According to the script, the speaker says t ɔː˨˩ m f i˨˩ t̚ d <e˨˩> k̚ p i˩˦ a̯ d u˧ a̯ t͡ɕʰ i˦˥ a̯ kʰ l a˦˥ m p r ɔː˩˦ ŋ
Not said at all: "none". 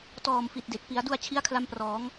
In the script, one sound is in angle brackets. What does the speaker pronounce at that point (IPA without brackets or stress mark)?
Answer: e˨˩